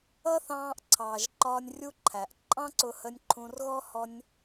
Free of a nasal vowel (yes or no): no